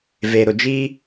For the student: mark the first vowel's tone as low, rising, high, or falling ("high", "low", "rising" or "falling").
low